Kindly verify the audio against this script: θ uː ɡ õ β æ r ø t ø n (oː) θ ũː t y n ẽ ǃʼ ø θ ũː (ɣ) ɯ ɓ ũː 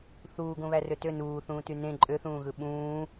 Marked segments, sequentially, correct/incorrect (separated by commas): incorrect, correct